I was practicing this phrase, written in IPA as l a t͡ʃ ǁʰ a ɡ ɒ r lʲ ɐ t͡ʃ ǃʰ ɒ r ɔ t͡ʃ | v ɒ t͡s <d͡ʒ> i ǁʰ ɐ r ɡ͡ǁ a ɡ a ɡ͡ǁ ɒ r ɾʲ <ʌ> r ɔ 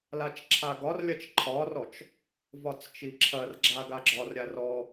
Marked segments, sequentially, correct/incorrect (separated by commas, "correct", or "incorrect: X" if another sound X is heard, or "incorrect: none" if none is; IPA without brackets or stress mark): incorrect: t͡ʃ, incorrect: a